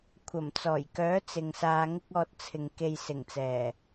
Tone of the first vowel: low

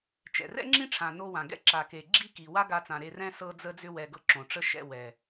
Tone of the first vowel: low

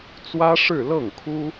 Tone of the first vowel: high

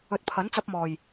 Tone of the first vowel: low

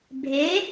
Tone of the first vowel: rising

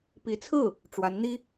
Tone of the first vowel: rising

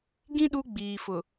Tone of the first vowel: high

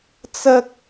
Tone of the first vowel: high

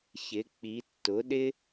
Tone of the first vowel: rising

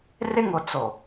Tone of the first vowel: high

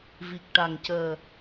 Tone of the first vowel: low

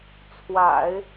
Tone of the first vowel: low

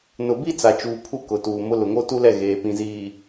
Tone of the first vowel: low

